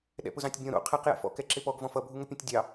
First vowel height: mid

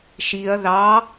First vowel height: high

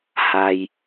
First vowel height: low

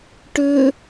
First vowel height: mid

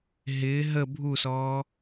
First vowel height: high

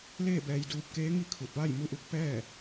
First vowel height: mid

